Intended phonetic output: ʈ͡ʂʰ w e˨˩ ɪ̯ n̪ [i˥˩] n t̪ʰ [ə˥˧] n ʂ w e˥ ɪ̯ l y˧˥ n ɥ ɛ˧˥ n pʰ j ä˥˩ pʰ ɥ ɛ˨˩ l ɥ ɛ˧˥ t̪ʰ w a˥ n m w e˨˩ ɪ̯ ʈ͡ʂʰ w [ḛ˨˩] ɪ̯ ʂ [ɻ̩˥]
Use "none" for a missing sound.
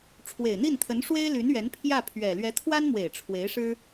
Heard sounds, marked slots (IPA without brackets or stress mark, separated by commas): i˥˩, ə˧˥, e˧˥, ɻ̩˥